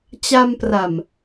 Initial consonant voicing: voiceless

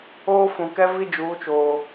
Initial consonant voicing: voiceless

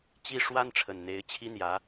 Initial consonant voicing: voiceless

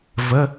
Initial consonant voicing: voiced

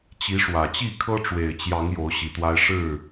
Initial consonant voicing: voiceless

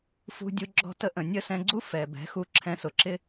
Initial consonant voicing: voiceless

